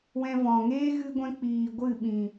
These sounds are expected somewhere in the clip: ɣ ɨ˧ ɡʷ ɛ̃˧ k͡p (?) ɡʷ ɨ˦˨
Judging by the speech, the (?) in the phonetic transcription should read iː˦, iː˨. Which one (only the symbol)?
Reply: iː˨